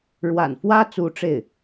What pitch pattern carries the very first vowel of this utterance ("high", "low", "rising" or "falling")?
low